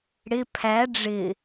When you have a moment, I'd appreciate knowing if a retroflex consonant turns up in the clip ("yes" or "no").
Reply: yes